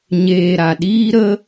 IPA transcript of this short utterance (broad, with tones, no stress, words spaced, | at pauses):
ɲeː˨ɾa˨ ɗiː˧ɾə˧